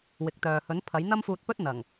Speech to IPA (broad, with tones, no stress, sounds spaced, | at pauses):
w ɪ˨˥ k̚ t̪ œː˨ h ɵ˨˥ n pʰ ɐ˨˥ j n̪ ɐ˥ m f uː˧ t̚ p ɵ˥ t̚ n̪ ɐ˨˩ ŋ